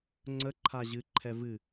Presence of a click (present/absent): present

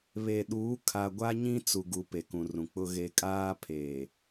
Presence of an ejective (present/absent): present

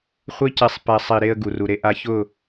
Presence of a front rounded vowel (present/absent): absent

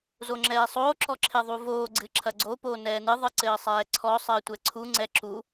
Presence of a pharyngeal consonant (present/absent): absent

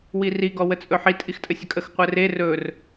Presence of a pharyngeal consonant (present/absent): present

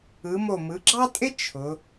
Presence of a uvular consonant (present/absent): absent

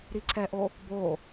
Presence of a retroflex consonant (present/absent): absent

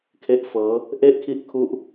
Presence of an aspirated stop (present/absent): present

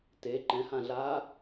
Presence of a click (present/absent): present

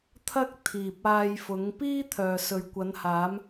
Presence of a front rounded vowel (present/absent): present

